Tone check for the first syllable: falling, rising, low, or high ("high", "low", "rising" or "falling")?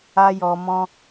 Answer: high